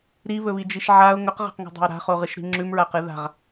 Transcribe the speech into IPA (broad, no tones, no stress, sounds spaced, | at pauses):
ɾ i β ɵ β i d͡ʒ i ʃ ʕ a ʊ̯ ŋ ɵ q ʁ a̤ q ŋ o̤ dˤ a̤ ʊ̯ ɾ a̤ χ o ʁ ɨ ʃ ɾ i̤ ŋ͡ǁ ʉ m ɹ a q ɨ ð a̤ ʁ